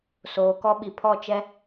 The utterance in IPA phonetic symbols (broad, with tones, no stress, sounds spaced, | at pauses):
s oː˨ k ɔ˦ ɓ i˨ pʰ ɔ˦˨ t͡ʃ ɛ˦